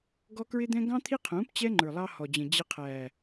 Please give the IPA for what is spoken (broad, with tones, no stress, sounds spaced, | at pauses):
ɡ ɔ˦ k ɹ ɪ˦ d̪ ɛ̃˦ ɡ ɑ̃˦ t̪ʰ i˦ qʰ ũː˨˦ p t͡ɕ ɛ˦ ŋ͡ǃ ə˞˨ lˠ ɑ˦ h ɔ˨ d͡ʑ ə̃˨ d͡ʑ ɪ˦ qʰ æː˨